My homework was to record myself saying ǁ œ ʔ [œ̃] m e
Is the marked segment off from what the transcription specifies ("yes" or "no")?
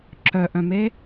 no